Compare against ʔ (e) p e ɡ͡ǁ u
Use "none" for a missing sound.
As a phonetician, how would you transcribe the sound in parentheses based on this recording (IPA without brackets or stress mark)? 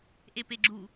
e